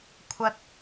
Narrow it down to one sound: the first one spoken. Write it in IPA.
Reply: kʷʰ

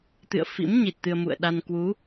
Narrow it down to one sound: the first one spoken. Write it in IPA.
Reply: t̪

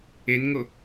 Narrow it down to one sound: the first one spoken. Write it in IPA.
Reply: e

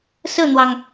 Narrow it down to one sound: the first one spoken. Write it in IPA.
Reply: s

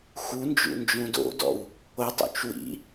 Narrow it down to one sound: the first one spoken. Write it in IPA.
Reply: x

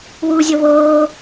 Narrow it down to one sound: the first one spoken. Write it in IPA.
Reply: w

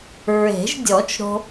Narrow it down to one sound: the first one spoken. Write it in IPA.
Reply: ɹ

